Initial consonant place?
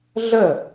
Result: alveolar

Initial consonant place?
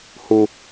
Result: glottal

